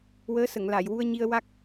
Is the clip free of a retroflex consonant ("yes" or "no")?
yes